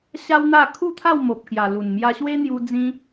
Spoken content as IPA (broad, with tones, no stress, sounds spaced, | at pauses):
ɕ a˦ w n̪ a˥˧ kʰ u˥˧ t̪ʰ a˥˧ w m o˨ p̚ k j a˨˩ l u˨˩ n m j a˧ ɕ w e˦ n̪ j u˧ d͡z ĩ˧